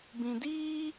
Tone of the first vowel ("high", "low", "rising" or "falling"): low